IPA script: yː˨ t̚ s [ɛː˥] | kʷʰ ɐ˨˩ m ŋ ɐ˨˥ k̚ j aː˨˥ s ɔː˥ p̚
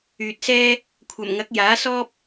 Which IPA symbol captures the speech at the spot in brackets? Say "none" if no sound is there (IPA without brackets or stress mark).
ɛː˥